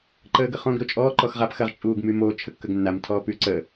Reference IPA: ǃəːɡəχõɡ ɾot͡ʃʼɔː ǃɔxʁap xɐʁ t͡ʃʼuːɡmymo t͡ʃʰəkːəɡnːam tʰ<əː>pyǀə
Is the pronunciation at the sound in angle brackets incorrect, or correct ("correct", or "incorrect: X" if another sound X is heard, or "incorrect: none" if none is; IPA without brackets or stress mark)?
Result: incorrect: ɔː